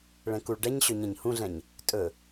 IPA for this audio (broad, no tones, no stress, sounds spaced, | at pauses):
ɭ ɛ̃ k u ɭ ɖ ɛ ɲ ɕ ø ɲ ɛ̃ ɲ h ũ ɮ ɛ̃ ɲ | tʼ ɵ